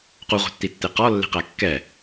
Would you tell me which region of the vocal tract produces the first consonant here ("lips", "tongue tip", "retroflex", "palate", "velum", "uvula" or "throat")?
uvula